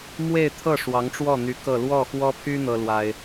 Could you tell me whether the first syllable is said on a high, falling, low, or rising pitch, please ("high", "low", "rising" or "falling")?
falling